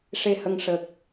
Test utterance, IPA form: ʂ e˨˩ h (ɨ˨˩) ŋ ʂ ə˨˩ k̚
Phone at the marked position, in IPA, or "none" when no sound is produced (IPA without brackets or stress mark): ə˨˩